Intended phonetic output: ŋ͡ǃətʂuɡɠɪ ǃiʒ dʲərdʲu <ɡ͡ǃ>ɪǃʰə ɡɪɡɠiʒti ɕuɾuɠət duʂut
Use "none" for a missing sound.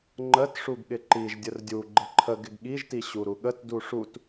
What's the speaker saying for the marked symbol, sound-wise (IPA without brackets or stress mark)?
ɡ͡ǃ